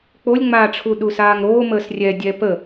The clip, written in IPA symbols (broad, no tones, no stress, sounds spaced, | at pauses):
k͡p o lʲ ŋ͡m aː ʈ͡ʂʰ u ɗ u s aː ŋ ɾ oː m əː s rʲ ɛ dʲ ɛ p ə